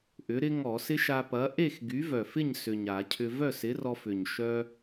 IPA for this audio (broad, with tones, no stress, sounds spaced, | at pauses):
ʔ ʏ˨˥ ɾ ɪ˦˥ ŋ ɔ˧˩˧ s ɪ˦˥ ʃ a˧ p ɐ˨˥ ʔ e˥˨ x ɡ y˨˥ v œ˨˩ f ɪ˥˨ ɲ s ʏ˨˩ ɲ a˧˩˧ cʰ ʏ˧ v œ˥˨ s ɪ˨˥ r ɔ˧ f ʏ˨˩ ɲ ʃ œ˧